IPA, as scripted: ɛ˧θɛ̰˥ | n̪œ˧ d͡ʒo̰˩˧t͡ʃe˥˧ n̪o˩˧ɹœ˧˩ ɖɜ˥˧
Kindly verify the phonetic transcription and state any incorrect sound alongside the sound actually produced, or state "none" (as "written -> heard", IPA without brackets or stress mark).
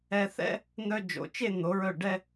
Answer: ɜ˥˧ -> ɛ˥˧